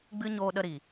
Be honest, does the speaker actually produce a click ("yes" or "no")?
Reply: no